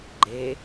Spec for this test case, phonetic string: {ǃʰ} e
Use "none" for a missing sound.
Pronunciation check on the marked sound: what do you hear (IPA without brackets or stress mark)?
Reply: ɡ͡ǃ